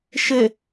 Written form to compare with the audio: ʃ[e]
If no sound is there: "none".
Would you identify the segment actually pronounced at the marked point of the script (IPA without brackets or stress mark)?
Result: e